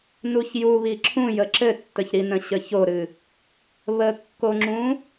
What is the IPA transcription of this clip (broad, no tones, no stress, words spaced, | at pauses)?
nuçjuβi ǁʰũjə ǁɘtːəçɾinə̃ ɕəçoɾɨ | βəkːoŋ͡ǁũ